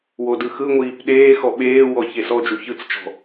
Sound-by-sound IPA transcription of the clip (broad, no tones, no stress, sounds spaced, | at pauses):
w o d ɯ x ɯ ŋʷ iː p ɗ eː x ɔ ɓ eː w ɔ ç e s ɔ d͡ʒ u ç ɯ t͡s t͡ʃ ɔ̤